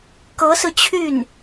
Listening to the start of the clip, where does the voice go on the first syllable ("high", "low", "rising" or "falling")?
rising